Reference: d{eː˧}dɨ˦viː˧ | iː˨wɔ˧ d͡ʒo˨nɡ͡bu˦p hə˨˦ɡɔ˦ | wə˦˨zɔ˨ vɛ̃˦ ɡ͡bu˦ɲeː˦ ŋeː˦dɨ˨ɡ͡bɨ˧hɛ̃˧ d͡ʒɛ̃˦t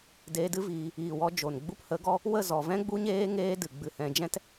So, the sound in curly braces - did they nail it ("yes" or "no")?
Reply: yes